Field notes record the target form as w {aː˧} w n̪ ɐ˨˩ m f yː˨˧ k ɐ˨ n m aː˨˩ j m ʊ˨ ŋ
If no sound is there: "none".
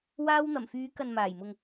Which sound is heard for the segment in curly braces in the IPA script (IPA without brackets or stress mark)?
aː˧